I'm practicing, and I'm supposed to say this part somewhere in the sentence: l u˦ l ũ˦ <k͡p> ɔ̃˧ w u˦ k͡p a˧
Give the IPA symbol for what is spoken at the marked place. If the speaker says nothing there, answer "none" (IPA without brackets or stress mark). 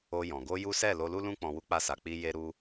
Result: k͡p